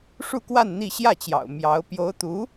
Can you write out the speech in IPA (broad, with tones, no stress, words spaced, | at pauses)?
ʂu˥˧kwa˥˧n n̪i˥˧ ɕjä˥˩t͡ɕjɑ̰˨˩ʊ̯ mjɑ˧˥ʊ̯ pjo˧˥ʊ̯t̪u˧˥